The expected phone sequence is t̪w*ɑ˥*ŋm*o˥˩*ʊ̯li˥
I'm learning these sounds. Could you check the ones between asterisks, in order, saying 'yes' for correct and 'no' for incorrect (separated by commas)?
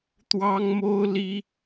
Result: yes, no